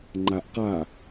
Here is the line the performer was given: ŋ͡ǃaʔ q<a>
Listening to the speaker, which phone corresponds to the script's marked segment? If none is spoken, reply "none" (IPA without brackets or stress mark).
a